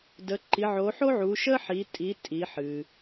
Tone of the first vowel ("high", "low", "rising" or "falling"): rising